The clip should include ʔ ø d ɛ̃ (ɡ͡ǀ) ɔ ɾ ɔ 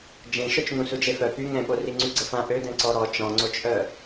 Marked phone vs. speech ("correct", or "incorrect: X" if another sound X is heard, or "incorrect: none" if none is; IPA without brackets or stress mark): incorrect: ǀ